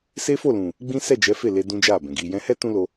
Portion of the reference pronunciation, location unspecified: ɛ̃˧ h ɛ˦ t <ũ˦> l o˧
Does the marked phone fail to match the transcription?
no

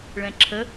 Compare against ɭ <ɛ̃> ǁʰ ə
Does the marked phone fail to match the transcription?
no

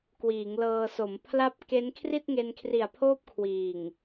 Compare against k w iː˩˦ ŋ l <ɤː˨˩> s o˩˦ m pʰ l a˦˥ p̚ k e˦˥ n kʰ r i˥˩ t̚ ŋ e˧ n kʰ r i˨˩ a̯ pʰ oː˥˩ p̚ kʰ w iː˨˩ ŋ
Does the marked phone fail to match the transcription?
yes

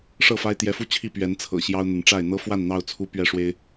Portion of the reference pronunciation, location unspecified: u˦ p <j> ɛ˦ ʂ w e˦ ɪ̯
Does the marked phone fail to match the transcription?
yes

